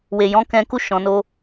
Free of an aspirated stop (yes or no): yes